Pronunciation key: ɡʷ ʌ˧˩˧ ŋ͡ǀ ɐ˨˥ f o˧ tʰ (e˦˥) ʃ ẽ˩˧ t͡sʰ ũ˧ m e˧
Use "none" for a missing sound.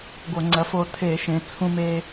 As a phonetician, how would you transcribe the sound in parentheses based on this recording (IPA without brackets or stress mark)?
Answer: e˧˩˧